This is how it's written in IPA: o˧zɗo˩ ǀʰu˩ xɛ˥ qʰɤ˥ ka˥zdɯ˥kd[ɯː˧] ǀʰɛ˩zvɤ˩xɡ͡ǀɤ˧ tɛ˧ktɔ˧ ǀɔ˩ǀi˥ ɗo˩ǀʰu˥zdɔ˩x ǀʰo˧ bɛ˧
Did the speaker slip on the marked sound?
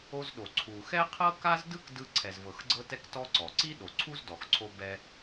yes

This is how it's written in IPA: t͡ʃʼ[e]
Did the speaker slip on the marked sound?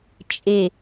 no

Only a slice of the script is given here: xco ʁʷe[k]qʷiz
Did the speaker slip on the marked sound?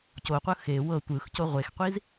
yes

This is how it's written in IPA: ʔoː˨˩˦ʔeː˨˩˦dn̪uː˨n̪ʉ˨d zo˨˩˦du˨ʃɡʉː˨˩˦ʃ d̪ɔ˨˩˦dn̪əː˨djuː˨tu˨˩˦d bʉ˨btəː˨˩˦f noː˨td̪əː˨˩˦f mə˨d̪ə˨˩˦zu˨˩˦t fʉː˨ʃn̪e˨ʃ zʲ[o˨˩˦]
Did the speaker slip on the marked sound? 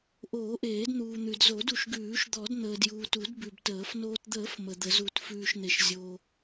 yes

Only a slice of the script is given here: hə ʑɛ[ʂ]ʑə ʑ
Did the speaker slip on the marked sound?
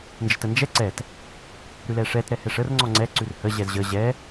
yes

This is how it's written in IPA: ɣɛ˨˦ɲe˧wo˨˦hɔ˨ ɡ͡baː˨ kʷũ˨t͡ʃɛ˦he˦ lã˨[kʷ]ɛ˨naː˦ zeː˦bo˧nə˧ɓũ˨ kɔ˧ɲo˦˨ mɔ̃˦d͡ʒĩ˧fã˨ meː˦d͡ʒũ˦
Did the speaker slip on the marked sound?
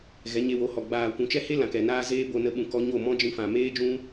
yes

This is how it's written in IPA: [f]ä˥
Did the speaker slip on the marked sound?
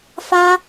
no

